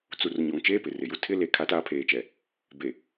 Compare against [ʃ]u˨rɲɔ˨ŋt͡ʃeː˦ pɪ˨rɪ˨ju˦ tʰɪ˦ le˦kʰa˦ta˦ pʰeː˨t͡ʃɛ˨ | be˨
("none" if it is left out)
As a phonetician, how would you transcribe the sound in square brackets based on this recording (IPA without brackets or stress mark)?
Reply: t͡s